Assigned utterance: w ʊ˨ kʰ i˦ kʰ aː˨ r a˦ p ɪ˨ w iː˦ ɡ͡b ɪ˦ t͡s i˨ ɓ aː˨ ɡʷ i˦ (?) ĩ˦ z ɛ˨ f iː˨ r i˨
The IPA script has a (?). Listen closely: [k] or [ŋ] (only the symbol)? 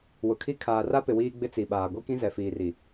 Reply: k